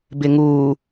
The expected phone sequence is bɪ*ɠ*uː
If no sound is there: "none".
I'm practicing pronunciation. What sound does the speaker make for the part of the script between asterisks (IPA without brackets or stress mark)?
ŋ